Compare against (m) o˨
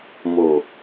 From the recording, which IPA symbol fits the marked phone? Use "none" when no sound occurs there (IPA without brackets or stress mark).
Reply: m